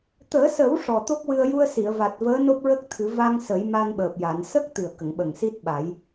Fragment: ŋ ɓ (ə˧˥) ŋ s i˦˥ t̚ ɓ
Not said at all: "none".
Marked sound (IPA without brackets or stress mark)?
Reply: ə˨˩